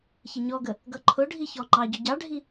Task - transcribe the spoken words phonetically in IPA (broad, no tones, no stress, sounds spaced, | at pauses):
ç ɪ ɲ ɔ ɡ ə | ɡ ʌ ǃʰ ʊ ɖʱ i ç ɔ ŋ͡ǃ ɑ ɟ ʊ ɟ ɑ ɖʱ i